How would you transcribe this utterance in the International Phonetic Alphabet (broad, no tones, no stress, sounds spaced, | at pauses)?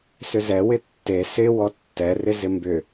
s ʏ z ɛ w ɪ tː e s ɪ w ɔ tː ɛ r ɪ z ɪ m b ʏ